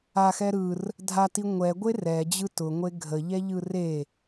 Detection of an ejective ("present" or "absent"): absent